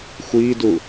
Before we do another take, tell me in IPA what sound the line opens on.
xʷ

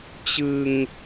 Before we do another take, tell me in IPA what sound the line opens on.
t͡ɕ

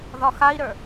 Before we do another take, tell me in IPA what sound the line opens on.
ð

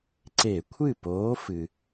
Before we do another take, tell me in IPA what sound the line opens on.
ǀ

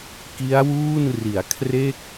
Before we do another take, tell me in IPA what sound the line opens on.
k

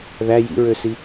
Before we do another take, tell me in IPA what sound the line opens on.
ð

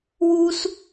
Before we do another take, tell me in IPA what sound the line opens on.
w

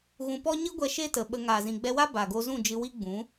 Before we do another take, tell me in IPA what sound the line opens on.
ɣ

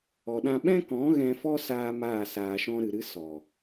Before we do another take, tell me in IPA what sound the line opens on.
ɔ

